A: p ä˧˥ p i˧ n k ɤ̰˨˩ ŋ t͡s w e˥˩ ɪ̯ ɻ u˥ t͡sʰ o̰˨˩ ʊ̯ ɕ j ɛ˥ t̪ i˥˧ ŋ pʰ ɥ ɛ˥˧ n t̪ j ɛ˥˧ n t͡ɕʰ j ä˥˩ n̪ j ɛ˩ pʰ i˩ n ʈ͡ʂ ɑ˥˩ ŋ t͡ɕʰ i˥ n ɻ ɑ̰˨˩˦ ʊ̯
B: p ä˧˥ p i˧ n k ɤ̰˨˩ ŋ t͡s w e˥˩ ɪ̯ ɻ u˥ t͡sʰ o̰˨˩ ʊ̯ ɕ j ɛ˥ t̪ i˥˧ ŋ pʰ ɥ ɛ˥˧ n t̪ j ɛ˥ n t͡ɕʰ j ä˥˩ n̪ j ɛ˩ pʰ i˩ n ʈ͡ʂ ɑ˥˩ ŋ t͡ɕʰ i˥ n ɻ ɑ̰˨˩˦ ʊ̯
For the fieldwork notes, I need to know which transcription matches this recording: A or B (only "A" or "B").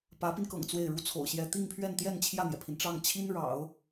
A